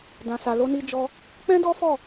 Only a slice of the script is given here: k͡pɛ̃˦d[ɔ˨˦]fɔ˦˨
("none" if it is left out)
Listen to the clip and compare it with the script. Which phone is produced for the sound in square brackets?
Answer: ɔ˦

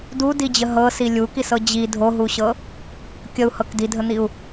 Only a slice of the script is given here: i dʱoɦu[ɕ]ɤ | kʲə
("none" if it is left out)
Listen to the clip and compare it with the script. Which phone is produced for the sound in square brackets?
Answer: ɕ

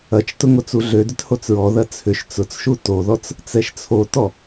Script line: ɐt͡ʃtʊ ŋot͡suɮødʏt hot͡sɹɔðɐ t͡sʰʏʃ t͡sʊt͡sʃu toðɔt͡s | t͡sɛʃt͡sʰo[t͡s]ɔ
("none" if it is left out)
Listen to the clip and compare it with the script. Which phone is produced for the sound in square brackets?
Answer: t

